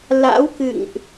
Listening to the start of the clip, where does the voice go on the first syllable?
rising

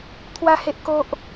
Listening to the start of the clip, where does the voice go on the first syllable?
high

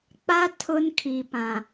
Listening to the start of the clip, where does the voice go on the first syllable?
high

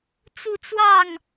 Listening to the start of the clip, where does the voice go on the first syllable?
falling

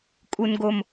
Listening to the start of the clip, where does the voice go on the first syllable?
low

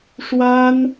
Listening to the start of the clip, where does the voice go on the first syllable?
high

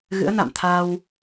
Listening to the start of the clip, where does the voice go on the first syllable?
rising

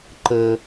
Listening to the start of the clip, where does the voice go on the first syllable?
high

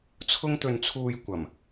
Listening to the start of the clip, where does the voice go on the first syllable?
high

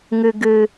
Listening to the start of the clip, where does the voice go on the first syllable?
low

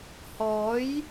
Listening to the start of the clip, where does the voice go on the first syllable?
rising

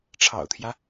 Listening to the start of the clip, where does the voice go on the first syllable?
low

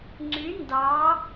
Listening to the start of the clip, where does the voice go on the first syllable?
rising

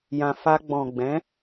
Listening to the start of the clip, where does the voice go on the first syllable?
low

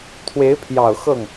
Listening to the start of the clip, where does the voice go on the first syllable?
rising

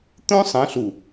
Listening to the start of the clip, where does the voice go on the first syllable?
high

